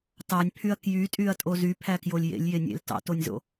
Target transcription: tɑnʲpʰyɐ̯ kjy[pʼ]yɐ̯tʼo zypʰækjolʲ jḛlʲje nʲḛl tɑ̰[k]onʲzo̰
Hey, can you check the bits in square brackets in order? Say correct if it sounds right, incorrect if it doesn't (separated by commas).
incorrect, incorrect